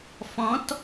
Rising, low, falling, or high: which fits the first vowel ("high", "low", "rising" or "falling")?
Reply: rising